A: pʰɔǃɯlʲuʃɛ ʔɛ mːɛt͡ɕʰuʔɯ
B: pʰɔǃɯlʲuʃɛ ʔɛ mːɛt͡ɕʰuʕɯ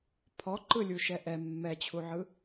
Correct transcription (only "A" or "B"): B